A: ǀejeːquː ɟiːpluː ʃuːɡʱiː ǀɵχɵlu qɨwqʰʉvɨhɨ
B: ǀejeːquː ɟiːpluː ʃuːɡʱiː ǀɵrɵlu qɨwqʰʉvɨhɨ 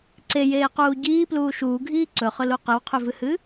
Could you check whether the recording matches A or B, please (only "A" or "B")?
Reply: A